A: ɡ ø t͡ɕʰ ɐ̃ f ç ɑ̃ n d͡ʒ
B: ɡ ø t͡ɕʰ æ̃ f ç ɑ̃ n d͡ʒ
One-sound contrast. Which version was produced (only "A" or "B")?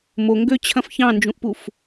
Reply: A